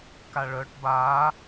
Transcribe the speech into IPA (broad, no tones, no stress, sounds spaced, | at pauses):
k a ɭ œ ʈ b a